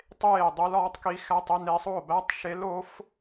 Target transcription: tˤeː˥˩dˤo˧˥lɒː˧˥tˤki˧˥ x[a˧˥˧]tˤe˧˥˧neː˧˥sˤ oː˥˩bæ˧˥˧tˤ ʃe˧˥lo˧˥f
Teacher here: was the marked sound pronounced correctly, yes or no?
no